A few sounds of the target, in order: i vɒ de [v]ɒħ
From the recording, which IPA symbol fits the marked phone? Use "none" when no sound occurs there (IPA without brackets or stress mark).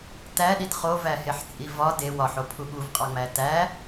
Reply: w